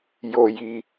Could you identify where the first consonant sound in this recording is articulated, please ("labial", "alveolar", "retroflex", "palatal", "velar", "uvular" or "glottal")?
palatal